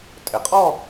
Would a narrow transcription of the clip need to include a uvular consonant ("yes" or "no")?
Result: yes